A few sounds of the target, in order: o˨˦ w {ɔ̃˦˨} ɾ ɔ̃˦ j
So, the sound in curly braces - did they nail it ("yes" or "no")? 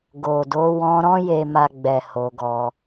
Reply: no